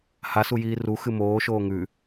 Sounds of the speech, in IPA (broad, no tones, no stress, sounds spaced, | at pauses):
h a s u j iː r u x ɨ m oː ʃ oː ŋ ʉ